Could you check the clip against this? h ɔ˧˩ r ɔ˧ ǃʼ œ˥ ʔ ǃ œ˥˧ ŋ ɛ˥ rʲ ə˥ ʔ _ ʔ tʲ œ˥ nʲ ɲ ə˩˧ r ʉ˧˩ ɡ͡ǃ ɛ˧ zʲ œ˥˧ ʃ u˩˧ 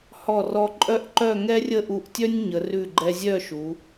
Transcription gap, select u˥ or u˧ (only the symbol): u˧